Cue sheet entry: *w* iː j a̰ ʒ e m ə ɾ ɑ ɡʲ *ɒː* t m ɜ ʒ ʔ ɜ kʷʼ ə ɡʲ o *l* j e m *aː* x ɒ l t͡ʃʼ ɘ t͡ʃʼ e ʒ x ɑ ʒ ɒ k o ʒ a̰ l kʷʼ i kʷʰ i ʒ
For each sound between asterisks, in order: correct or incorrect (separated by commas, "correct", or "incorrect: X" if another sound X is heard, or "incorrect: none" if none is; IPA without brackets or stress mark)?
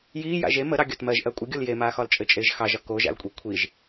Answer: incorrect: j, incorrect: ɒ, correct, correct